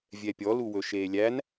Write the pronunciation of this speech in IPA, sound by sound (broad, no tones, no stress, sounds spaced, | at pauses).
vʲ ɛ pʲ ɔ l u w ɵ ʃ eː lʲ æ n